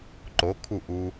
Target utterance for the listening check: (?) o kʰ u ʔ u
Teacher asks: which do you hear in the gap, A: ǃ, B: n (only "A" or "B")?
A